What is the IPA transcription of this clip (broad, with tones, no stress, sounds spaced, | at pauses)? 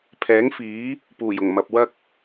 pʰ ɛː˨˥ ŋ f iː˨˥ | p uː˨˩ j ʊ˨˩ ŋ m ɐ˨ p̚ w ɐ˥ k̚